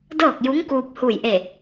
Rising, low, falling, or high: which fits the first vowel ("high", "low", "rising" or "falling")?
falling